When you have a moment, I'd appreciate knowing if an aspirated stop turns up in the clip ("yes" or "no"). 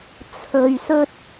yes